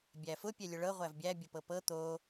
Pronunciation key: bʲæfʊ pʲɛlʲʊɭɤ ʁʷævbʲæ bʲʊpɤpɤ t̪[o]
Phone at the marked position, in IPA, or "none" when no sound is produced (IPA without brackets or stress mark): o